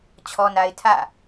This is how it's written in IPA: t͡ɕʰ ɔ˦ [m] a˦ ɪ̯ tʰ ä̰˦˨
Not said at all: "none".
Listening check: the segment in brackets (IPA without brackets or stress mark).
n